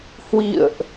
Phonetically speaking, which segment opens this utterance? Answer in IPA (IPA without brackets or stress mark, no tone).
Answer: h